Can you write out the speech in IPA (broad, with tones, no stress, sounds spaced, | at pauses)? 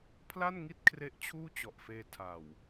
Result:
pʰ l a˥˩ n ŋ i˥˩ t̚ kʰ r e˦˥ ʔ t͡ɕʰ uː˥˩ t͡ɕ ɔ˨˩ ʔ f eː˧ tʰ a˨˩ w